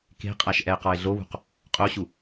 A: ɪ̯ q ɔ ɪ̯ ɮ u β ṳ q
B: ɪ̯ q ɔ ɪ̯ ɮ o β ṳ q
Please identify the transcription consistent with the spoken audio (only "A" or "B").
B